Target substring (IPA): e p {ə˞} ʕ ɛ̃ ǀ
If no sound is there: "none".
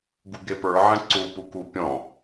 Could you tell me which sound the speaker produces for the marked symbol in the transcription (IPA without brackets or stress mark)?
ə˞